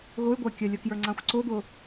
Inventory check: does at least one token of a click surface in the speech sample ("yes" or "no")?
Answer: yes